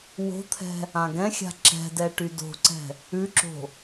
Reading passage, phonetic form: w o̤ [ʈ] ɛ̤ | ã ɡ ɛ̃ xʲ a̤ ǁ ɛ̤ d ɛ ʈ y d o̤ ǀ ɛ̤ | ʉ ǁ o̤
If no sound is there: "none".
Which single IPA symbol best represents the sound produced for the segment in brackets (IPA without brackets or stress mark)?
t̪ʰ